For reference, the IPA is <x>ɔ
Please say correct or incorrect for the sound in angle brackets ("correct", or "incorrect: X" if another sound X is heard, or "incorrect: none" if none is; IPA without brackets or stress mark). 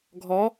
incorrect: ɡʱ